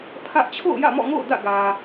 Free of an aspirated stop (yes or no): no